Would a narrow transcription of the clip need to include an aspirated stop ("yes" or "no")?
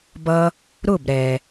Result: no